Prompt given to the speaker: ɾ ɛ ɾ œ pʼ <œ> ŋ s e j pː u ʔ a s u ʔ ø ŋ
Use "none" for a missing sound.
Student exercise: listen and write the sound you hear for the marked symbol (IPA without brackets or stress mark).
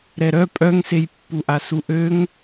œ